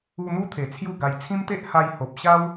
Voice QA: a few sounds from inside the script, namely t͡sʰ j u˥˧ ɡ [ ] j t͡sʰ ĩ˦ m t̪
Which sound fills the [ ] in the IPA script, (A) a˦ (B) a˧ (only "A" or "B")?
B